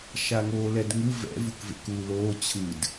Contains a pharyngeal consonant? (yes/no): no